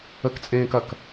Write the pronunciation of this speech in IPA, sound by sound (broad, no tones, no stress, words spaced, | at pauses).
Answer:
əkt͡sʼẽːkɐk